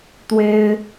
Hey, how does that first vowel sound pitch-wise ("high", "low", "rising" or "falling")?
high